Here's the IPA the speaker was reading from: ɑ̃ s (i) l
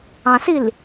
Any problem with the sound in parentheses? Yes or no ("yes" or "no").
no